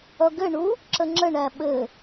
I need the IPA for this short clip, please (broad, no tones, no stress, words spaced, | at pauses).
ʌɡɘɳu | ǁəŋ͡ǁəɳæ ɓɘ